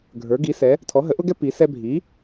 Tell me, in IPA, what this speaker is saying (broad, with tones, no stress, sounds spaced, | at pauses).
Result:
ɡʱ ə˞˩˥ ɡ i˩˥ s ɛ˩˥ | tʰ ɔ˩˥ ɦ ə˩˥ ʔ ʊ˥ ɡ ɛ˥ p i˩˥ s ɛ˥ bʱ i˩˥